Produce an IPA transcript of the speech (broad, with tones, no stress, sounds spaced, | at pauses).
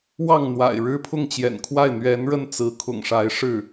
w ɑ˥˩ ŋ n̪ w a̰˨˩ ɪ̯ ɻ ɻ̩˥ pʰ ʊ˥˩ ŋ t͡ɕ j ɛ̰˨˩ n kʰ w a˥˩ ɪ̯ n̪ ɥ ɛ˧˥ n ɻ ə˥˩ n t͡s ɹ̩˧˥ kʰ ʊ̰˨˩ ŋ ʂ a˧˥ ɪ̯ ʂ ɻ̩˥˩